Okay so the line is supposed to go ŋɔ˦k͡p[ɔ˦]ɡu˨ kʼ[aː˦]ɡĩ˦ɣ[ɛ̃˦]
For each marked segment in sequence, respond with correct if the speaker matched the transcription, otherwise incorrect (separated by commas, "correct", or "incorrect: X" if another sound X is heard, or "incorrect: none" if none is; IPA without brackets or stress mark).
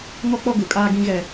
correct, correct, incorrect: ɛ˦